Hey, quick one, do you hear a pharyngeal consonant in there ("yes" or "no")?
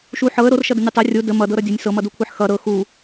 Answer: yes